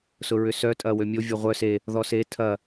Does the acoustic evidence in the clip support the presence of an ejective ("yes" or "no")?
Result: yes